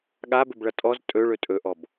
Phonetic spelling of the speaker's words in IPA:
ɠ a b ɵ b ɭ ʌ tʼ ɔ z tʼ ɵ ɭ ɵ tʼ ɵ ʔ ɔ b

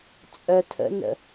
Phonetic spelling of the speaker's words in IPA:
t͡sʼ œ tʰ ə̰ n ə̰

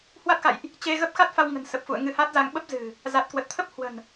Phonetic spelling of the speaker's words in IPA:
h w a˦˥ t̚ x a̰˧˨ j ʔ | t͡ɕ e˧ ɣ ə˦˥ p̚ x a˦˥ t̚ f a˧ w ŋ ə̤˨˩ n s ə˨˩ p̚ f ṵ˧˨ ə̯ ŋ ɨ˧ h a˦˥ t̚ z a˧ ŋ ɓ ə˦˥ p̚ z ɨ̤˨˩ | z a˨˩ t̚ k w ə˨˩ t̚ t̪ʰ ə˦˥ p̚ h w ə̤˨˩ n

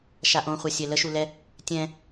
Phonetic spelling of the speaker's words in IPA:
ʃ a ʔ õ χʷ a sʲ ɛ l ə ʃ u l ɛ | tʲ ɛ̃

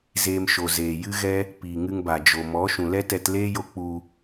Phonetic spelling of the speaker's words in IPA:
z eː˧ m ʃ o˨ z eː˨ j ɨ˦ ɣ ɛ˦ | p iː˨ ŋ ɨ˧ ŋ b a˨ d͡ʒ o˨ m ɔ˨˦ ʃ ũ˨ l ɛ˦ t ɛ˧ t l eː˦ j o˦ k͡p u˧

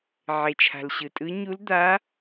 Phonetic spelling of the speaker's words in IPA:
ʕ e˩ t͡ʃʰ a̤˩ l ɕ ɯ˩ tʼ ɯ˨˦ ɲ u˨˦ l d̪ a˨˦

